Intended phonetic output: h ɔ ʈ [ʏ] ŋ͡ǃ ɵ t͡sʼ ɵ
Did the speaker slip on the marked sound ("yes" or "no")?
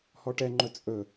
yes